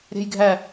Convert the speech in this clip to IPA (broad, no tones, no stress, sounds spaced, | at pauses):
ɾʲ æ̤ j ɡʱ æ